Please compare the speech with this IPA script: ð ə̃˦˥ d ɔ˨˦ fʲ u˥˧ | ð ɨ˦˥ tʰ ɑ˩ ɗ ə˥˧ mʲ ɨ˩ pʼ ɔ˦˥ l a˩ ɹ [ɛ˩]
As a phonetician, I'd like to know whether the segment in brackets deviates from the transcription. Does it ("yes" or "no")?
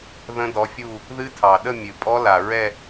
yes